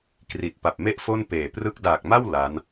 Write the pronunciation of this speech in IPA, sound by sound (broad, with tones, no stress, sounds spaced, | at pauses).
k r i˨˩ t̚ p a˨˩ p̚ m e˥˩ ʔ f o˥˩ n p eː˨˩ p r ɯ˥˩ k̚ d aː˨˩ k̚ m a˥˩ w l a˦˥ n